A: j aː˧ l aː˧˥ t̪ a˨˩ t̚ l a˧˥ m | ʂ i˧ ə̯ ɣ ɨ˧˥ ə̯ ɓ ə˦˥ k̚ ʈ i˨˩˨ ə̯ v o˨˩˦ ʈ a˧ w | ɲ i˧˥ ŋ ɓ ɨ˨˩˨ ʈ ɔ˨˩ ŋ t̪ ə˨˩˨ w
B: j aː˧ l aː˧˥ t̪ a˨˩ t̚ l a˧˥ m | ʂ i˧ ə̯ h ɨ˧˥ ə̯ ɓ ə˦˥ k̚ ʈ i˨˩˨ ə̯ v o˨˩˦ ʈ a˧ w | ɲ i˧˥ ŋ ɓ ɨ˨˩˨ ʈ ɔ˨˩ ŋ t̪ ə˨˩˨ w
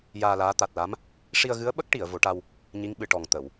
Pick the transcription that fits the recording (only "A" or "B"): A